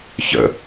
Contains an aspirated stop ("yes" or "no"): no